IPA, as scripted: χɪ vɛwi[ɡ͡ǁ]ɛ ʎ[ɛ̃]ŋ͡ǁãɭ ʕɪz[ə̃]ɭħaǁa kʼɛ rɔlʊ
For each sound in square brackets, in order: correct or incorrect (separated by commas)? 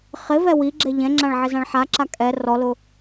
correct, correct, incorrect